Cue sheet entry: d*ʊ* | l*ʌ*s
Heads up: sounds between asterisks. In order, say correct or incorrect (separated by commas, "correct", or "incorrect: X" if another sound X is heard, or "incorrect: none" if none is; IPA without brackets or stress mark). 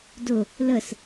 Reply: correct, incorrect: ə